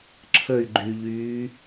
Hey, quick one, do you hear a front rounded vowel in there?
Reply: yes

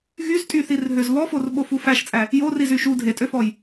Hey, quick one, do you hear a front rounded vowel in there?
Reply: yes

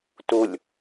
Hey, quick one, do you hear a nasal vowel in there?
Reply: no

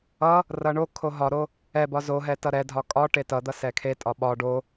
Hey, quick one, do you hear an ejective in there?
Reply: yes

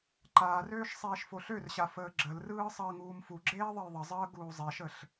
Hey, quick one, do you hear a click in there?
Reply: yes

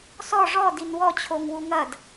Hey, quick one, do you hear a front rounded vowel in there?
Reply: no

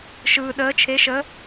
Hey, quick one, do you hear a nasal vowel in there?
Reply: no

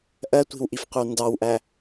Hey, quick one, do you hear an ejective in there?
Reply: no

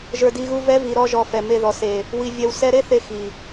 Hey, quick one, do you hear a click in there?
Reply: no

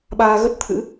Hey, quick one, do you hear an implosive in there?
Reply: yes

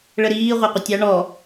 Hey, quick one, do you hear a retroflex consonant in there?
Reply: yes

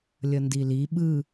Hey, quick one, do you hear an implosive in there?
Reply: yes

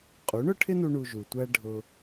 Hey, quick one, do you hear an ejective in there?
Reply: yes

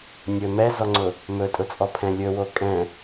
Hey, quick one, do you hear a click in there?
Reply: yes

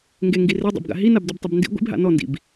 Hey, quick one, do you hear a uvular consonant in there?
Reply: no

